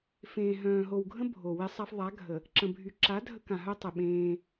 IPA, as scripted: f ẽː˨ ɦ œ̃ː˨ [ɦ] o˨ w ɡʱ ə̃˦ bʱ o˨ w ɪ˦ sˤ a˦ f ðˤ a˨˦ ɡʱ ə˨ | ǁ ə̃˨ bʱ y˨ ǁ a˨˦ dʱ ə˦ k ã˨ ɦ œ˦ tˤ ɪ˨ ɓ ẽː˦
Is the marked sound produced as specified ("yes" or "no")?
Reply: yes